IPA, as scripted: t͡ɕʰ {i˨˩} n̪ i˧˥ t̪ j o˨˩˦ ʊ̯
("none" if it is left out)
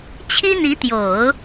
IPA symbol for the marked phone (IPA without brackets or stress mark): i˥